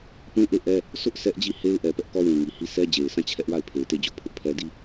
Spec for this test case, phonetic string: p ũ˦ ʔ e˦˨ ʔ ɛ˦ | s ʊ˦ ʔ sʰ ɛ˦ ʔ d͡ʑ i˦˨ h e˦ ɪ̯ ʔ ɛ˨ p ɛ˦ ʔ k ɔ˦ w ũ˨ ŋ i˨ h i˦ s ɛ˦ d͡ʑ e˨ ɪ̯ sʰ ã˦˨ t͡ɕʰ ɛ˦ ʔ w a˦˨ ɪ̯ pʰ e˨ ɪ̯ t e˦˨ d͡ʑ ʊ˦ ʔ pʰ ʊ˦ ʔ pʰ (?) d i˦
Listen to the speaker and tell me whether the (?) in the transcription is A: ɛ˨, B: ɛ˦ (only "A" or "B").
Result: B